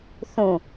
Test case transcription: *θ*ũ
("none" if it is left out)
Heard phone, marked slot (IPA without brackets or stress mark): θ